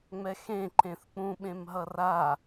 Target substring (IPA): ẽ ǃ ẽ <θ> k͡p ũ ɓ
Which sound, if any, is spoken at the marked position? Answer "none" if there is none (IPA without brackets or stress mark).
θ